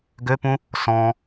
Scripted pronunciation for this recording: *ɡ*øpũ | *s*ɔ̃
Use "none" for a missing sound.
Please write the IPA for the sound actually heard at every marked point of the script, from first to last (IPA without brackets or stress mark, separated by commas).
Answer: ɡ, s